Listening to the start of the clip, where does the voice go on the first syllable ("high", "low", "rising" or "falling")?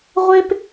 high